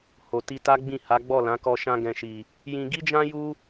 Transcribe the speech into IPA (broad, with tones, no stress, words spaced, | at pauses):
ho˨ti˧ta˦ɡ͡bĩ˦˨ ha˨˦ɡ͡bɔ˦˨lã˨˦kɔ˧ ʃã˧ɡɛ̃˨ʃi˨ | jĩ˧ɡi˦d͡ʒã˦ ju˦